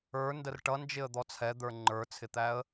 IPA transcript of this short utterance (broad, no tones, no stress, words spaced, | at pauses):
ə˞ndər ʈʌnd͡ʒɪə̯d̪ɔ t͡sʰɛd̪ə˞ ŋ͡ǃə˞t͡sʰɪt̪æə̯